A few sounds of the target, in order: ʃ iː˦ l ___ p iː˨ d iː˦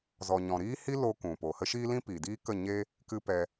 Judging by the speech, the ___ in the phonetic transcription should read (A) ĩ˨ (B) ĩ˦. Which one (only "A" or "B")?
B